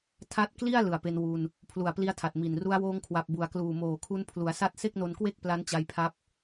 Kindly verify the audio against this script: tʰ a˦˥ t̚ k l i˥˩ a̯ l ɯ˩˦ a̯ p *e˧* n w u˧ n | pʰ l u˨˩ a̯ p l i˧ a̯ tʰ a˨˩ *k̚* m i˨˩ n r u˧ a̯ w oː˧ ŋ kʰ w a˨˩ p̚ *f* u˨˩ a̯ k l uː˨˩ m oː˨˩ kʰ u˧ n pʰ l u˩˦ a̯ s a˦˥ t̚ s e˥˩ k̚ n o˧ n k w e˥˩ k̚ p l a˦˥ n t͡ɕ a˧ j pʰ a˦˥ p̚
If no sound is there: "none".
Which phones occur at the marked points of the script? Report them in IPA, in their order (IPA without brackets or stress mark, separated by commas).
e˧, t̚, b